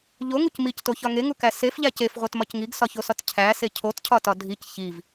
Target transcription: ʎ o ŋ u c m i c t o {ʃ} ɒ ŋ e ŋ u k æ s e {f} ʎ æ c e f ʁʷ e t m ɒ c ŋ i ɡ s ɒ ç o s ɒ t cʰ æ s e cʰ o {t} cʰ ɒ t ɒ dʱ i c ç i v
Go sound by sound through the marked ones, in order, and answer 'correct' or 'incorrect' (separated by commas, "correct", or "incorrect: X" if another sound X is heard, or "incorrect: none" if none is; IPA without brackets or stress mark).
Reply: incorrect: ç, correct, correct